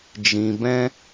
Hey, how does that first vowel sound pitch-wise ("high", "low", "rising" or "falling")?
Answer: low